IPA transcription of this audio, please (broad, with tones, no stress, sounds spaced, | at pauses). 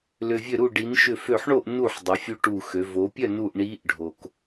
l ʏ˩ vʲ ø˧˩ ɾ u˧˩ ɖ i˩˧ n ʃ ʏ˧˩ f ø˧˩ ħ ɳ o˥˨ ʔ n u˧˩ ħ dˤ ə˩˧ fʲ u˧˥ ʈ u˧˩ x ø˩˧ v o˩˧ pʲ œ˥˨ n u˧˩ ʔ ɳ i˧˥ ʔ ɖʱ o˩ k